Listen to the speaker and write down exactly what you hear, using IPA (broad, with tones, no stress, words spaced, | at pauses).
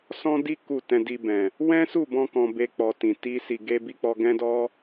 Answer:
sɔ̃˦di˦ ku˦˨ tɛ̃˧di˧ bɛ̃˨ | wɛ̃˦su˦˨bɔ̃˧ kɔ̃˧be˧ k͡pɔ˦tĩ˧ ti˦si˧ ɡe˦bi˦ k͡pɔ˦ ɡɛ̃˦dɔ˦